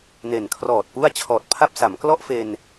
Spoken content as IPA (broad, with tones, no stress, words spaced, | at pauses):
ne˨˩nkʰrɔː˨˩t̚pu˥˩a̯ t͡ɕʰɔː˨˩t̚pʰa˥˩p̚sa˩˦m klɔ˥˩ʔfe˧n